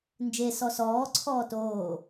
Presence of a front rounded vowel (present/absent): absent